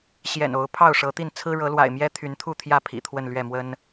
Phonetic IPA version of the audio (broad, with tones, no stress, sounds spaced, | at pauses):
ɕ j ɛ̰˨˩ n o˨˦ ʊ̯ pʰ ɑ˥˨ ʊ̯ ʂ ɤ˨˦ t̪ i˥˨ n t͡sʰ ɹ̩˦ ɻ ɤ˨˦ l w a̰˨˩ ɪ̯ m j ɛ˦ t̪ʰ y˨˦ n t̪ʰ u˥˨ t̪ʰ j ä˥˨ pʰ ḭ˨˩ t̪ʰ w ə˥˨ n l ɥ ɛ˥˨ m w ə˦ n